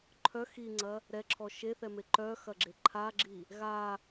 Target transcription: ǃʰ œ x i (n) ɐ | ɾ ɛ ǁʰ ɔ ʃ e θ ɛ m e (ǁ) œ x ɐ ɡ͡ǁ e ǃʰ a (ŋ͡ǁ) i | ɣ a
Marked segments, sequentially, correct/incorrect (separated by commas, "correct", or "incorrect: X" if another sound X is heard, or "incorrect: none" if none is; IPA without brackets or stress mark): incorrect: ŋ͡ǀ, incorrect: ǃ, incorrect: ɡ͡ǁ